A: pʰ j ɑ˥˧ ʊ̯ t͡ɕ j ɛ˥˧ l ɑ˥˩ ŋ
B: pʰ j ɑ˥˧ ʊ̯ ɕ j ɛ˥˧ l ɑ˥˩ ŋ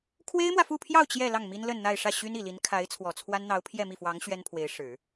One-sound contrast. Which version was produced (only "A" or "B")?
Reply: A